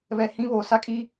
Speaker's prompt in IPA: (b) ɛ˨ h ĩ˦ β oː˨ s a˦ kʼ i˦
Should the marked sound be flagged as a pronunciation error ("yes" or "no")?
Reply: yes